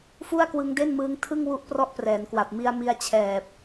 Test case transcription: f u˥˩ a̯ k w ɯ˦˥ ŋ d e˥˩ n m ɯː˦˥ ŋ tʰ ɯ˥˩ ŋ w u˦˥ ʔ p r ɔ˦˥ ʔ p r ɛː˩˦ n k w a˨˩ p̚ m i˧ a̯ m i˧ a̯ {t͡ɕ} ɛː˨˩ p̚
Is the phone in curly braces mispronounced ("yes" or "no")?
yes